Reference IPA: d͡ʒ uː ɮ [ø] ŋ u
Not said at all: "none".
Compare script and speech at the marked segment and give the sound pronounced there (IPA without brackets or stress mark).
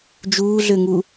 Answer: ø